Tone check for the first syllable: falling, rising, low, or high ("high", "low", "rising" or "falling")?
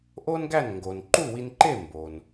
high